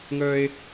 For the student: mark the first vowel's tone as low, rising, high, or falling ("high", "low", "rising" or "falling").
high